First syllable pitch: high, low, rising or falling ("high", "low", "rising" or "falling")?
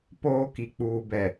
high